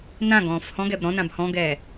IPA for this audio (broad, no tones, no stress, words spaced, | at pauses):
nã ɡɔ̃ːfhɔ̃ɡɛb ɾɔ̃ nãbhɔ̃ɡɛː